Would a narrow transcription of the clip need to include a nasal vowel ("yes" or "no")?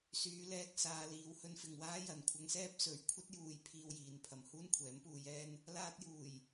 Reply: no